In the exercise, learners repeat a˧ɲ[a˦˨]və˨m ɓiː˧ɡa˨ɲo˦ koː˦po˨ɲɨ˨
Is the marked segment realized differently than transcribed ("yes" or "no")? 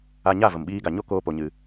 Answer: no